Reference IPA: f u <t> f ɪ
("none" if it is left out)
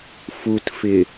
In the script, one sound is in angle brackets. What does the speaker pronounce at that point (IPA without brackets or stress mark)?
t